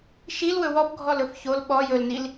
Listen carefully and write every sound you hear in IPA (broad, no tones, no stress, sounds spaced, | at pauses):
ʃ i l w ɵ w ɔ p ɡʱ ɔ l ɵ f ç o l ɓ ɔ j ɵ l n i l